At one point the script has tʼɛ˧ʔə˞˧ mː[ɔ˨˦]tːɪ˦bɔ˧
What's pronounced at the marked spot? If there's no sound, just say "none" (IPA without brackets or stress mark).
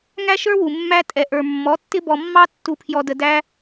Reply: ɔ˨˦